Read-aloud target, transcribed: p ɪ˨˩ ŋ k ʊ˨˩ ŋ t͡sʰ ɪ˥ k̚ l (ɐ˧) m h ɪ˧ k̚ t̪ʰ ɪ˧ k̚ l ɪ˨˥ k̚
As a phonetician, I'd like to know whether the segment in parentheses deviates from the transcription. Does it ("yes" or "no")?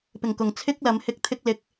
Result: yes